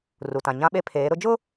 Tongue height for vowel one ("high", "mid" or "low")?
high